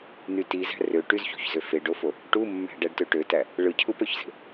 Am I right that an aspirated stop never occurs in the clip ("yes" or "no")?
no